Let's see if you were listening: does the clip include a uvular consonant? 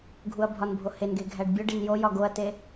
no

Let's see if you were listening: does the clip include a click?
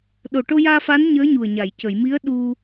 no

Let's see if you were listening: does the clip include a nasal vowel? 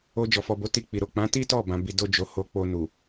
yes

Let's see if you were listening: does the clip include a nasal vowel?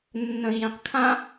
yes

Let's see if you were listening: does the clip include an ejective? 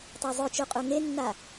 yes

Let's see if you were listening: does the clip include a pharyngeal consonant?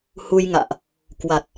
no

